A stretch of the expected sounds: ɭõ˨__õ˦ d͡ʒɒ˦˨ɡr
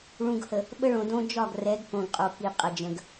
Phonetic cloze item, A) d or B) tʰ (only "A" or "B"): A